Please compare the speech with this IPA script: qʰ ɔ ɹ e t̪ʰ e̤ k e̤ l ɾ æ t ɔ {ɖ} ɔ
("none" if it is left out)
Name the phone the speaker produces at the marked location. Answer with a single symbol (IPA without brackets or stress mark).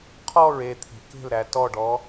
ɖ